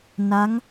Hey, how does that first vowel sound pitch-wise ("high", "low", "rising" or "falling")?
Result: rising